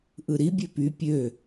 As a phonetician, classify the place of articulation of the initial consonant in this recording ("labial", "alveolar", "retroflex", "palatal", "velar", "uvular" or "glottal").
glottal